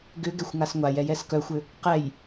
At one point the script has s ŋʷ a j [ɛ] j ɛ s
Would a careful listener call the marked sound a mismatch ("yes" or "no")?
no